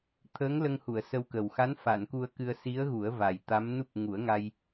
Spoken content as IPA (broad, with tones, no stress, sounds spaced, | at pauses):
t̪ʰ əː˧˥ ŋ l ə˧ ŋ h u˨˩˨ ə̯ s ə˧ w k ə˨˩ w x a˧˥ n f a˨˩˨ n k u˧ ə̯ k ɨ˧ ə̯ s i˧˥ ə̯ ɣ u˨˩˦ ə̯ v a˨˩ j t̪ a˧˥ m n u˦˥ p̚ ŋ u˨˩˦ ə̯ ŋ a˧ j